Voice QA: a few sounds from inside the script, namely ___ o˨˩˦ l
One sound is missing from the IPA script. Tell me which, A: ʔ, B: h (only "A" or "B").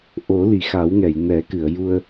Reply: A